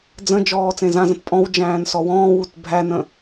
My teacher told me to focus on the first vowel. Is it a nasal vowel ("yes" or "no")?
yes